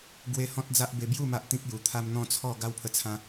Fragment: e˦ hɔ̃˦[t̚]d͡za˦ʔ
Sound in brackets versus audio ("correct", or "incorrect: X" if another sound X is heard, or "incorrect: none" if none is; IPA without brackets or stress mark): correct